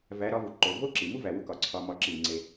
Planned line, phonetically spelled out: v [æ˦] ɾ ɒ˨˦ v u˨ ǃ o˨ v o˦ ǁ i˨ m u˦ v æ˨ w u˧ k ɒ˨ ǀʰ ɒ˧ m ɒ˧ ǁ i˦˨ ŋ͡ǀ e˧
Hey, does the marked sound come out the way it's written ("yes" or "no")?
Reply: no